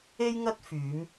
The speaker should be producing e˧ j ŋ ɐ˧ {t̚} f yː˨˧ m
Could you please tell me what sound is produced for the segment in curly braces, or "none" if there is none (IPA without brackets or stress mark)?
t̚